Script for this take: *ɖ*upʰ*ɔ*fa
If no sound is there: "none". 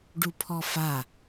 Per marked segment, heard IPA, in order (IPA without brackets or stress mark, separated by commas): ɖ, ɔ